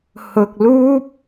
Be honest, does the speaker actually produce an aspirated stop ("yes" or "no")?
no